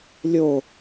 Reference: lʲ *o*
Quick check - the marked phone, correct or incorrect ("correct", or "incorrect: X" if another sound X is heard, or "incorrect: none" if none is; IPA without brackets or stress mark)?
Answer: correct